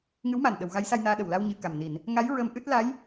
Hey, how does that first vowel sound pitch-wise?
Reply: rising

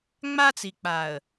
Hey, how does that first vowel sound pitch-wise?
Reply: high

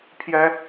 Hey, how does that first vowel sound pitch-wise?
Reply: high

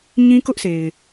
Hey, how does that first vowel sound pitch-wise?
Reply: high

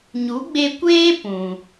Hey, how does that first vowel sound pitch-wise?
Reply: rising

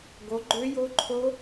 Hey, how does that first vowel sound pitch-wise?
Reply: rising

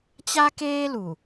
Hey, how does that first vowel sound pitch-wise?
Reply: high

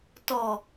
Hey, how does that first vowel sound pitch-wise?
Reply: low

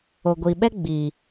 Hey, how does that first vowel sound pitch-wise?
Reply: low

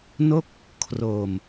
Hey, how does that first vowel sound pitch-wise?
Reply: falling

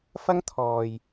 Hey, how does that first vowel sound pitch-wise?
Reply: high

